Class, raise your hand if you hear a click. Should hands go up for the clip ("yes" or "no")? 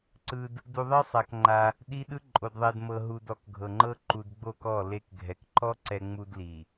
yes